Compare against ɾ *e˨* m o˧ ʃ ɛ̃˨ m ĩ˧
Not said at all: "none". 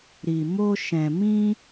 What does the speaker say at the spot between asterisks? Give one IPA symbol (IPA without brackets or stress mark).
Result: i˨